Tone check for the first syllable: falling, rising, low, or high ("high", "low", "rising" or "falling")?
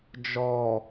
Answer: low